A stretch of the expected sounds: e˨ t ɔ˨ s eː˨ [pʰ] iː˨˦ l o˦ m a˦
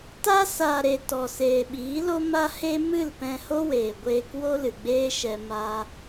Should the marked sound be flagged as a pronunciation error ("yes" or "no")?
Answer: yes